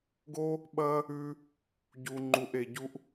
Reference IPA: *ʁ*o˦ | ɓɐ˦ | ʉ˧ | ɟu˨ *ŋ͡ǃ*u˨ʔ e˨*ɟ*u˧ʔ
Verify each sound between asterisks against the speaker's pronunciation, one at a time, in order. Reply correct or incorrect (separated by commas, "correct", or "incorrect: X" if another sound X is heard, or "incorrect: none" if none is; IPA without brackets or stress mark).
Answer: incorrect: ɡ, correct, correct